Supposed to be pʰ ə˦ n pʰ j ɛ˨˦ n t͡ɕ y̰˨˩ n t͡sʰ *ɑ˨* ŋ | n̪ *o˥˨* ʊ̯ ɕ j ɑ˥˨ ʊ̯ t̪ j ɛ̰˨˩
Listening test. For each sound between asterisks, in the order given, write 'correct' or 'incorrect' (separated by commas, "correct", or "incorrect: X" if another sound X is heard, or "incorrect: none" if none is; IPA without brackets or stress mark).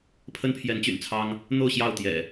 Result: incorrect: ɑ˦, correct